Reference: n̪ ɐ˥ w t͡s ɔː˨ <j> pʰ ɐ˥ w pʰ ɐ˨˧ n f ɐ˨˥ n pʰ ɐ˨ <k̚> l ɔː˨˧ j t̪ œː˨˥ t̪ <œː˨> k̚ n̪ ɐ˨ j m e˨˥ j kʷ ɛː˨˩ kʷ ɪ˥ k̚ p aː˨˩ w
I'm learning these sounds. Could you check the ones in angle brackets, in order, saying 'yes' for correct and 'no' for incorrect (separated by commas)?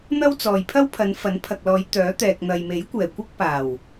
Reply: yes, yes, no